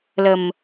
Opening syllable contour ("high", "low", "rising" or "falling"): low